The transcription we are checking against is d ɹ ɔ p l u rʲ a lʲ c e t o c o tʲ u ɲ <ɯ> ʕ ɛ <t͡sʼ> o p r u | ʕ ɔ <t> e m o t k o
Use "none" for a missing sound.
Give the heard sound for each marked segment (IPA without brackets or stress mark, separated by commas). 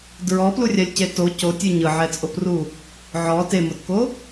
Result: ɯ, t͡sʼ, t